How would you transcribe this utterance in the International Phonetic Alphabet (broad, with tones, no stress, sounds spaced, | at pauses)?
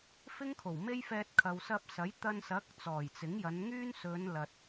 f ɪ˥ ŋ kʰ o˨˩ w m e˥ j f ɛː˧ t̚ kʰ ɐ˨ w s ɐ˧ p̚ s ɐ˨˥ j t̪ ɐ˧ n s ɐ˨˥ k̚ t͡s ɔː˨˩ j t͡s ɪ˨˥ ŋ j ɐ˨˧ n ŋ yː˥ n s ɵ˨˧ n l ɐ˨ t̚